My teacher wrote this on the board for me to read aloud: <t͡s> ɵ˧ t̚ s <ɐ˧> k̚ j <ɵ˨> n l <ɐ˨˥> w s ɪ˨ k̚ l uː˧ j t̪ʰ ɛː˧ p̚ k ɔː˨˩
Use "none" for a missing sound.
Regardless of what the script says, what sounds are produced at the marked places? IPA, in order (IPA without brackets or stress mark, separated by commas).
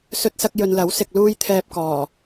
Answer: s, ɐ˧, ɵ˨, ɐ˨˥